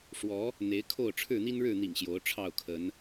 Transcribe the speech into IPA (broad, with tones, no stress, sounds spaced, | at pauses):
ʂ w ɔ˨˦ | n̪ e˨˦ ɪ̯ kʰ o˥˨ ʊ̯ ʈ͡ʂʰ ɻ̩˥˨ n̪ i˦ n ɻ ɻ̩˥˨ n̪ ḭ˨˩ ŋ ɕ j o˨˦ ʊ̯ ʈ͡ʂʰ ɑ˥˨ ʊ̯ kʰ ə˨˦ n